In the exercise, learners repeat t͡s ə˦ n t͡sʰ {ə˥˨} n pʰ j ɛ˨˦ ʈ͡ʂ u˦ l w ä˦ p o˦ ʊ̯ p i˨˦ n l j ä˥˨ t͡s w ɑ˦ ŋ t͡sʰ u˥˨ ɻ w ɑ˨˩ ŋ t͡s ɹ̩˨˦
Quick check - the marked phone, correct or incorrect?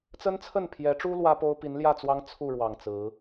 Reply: correct